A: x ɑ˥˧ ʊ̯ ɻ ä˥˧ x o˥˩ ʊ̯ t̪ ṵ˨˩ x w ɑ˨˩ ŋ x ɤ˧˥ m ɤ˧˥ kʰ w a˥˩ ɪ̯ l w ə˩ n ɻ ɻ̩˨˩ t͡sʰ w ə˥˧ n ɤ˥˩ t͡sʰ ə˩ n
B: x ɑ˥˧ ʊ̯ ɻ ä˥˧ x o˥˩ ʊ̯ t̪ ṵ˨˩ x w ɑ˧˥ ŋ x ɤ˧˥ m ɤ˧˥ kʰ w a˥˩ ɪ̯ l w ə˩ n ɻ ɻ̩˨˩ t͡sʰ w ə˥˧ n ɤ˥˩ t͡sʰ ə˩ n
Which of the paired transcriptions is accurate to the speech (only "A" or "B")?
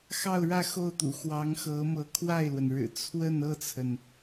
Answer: B